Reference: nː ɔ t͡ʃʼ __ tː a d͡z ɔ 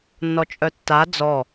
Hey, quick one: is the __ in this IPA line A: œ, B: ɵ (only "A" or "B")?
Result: A